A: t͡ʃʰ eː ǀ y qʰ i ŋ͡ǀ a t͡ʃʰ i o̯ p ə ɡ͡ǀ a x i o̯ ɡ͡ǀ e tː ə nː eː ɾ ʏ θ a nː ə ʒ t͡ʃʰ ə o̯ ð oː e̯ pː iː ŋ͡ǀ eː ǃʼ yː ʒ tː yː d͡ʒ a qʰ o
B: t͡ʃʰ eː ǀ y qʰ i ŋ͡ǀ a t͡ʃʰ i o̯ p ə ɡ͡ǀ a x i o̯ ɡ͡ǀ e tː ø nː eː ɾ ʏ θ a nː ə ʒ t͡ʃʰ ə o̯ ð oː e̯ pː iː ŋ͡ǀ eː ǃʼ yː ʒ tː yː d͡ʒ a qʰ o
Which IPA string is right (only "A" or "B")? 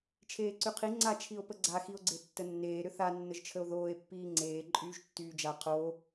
A